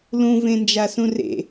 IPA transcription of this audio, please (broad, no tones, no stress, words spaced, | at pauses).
lũvẽnd͡ʒasũ rḛ